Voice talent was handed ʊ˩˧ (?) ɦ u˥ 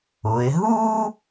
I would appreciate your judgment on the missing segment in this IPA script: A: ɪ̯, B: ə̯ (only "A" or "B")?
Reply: A